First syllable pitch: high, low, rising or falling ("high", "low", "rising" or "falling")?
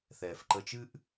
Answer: low